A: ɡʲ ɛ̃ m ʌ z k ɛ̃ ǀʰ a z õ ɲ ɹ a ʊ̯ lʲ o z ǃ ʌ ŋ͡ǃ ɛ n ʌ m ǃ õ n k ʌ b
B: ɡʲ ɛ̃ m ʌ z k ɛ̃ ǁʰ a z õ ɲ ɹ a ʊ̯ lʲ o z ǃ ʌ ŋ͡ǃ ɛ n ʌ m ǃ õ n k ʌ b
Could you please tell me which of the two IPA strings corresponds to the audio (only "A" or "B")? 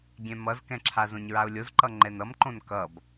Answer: B